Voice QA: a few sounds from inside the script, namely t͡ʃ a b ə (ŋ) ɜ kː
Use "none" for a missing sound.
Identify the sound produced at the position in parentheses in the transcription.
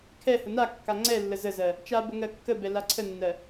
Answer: ŋ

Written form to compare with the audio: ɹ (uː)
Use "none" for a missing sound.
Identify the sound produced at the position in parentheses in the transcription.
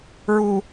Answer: u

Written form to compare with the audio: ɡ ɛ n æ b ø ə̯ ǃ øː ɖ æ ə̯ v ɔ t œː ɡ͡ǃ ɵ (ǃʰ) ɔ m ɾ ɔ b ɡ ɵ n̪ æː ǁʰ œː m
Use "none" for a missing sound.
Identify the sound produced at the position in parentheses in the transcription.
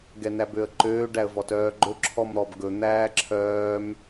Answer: ǁʰ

